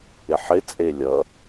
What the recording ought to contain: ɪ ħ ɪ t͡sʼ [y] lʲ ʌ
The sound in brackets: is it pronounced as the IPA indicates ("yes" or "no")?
no